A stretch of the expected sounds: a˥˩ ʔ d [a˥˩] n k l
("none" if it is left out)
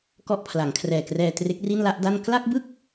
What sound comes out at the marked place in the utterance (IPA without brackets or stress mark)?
a˥˩